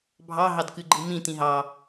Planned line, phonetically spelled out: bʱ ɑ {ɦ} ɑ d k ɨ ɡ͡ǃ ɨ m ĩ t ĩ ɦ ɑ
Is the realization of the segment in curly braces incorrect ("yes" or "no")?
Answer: no